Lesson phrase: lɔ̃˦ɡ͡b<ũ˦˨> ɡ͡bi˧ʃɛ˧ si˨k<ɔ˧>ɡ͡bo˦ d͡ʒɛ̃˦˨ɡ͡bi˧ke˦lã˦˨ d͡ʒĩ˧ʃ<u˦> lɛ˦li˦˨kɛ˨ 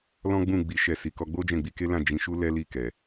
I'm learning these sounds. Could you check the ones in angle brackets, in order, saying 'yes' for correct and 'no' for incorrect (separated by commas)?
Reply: yes, yes, yes